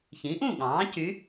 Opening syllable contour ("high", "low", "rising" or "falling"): rising